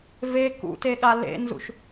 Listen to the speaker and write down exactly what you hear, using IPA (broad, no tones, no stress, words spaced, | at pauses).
ve kṵteɠa lḛnzṵʃ